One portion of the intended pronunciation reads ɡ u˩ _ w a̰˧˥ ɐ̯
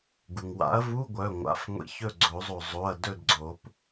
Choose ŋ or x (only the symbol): ŋ